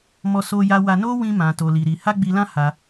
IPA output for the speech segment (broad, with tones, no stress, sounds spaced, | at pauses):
m ɔ˦ s o˦ j a˦ w a˦ n o˦ w ĩ˦ m ã˧ t o˧ l i˧ ɾ i˧ h a˦ ɡ͡b i˧ l ã˦ h a˧